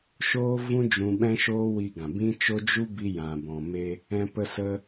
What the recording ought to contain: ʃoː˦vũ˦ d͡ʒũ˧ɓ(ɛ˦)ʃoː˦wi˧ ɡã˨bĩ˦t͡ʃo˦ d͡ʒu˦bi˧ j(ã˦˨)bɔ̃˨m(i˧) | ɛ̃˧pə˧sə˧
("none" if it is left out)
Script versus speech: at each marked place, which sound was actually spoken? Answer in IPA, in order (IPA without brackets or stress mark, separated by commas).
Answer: ɛ̃˦, ã˨, e˧